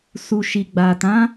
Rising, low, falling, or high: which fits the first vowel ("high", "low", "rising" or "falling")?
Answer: low